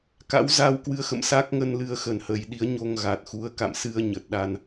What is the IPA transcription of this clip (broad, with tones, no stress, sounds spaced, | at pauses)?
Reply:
k a̰˧˥ w z a˧ w k w ɨ˧ ə̯ x ə̰˧˨ m s a˦˥ k̚ ŋ ə˧ n l ɨ˧ ə̯ x ə˨˩ n h ə˨˩ j ɗ i˨˦ ə̯ ɲ o˧ ŋ ɣ a˨˩ t̚ x u˨˦ ə̯ k a̰˧˨ m s ɨ˧ ə̯ ɲ ə˨˩ t̚ ɗ a˧ n